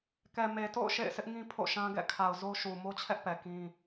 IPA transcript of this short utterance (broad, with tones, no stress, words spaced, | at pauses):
kɛ˨me˨to̰˦˨ʊ̯ ʃḛ˦˨ɪ̯sɪ˦ʔŋĩ˦ pʰo̰˦˨ʃã˦ɡɛ̰˦˨ kʰa˨ʊ̯zo˦ʃu˨ mo˦t͡ɕʰɛ˦ʔpɛ˨ kĩ˦